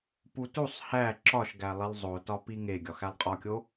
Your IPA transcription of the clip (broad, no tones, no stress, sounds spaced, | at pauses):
p u t u sˤ h æ ǁ ɒ ʃ ɡ æ lˠ i lˠ zˤ o t ɒ p i ŋ e ɡʲ ɒ x æ lˠ qʼ ɒ kʲ o